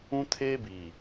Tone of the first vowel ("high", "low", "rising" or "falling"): high